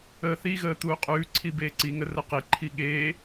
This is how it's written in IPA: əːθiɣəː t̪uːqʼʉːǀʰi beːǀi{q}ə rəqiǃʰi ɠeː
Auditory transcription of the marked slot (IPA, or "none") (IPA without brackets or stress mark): ŋ